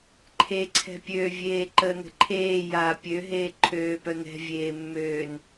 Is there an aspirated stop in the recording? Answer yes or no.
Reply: yes